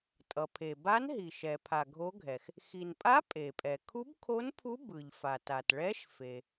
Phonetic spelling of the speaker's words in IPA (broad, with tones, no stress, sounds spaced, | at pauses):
tʼ ʌ˩ pʰ e˩ b a˧˥ n ɦ i˩ ʃ ɛ˩ pʰ a˩ ɡʱ o˧˥ ɡʱ ɛ˩ x | x i˩ n pʼ a˧˥ pʼ e˩ pʼ ɛ˩ kʰ u˧˥ b kʰ o˧˥ n pʰ u˧˥ b ɯ˩ ʎ f a˩ t a˩ t ɭ ɛ˧˥ ʃ f e˩